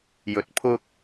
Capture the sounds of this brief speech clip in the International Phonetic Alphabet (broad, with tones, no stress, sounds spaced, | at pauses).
j ɵ˨ t̚ pʰ ʊ˥ k̚